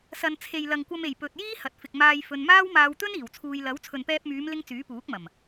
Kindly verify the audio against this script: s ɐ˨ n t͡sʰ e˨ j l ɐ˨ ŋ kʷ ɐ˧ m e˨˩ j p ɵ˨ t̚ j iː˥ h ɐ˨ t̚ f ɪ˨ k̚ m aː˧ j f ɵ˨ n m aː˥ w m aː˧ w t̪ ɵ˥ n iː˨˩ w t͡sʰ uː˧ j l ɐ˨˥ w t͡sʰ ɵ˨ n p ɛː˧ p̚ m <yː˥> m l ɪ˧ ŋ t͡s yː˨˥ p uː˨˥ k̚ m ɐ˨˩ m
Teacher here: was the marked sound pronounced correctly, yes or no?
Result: no